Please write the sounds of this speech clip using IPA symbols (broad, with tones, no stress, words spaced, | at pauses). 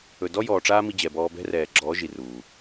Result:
ɵ˨dɔ˦jɔː˨ ʈ͡ʂaː˦mi˧d͡ʑɛ˨ bɔː˧bɛ̤˦rɛː˨ɡ͡ǁɔː˨˦ ʒi˨ruː˨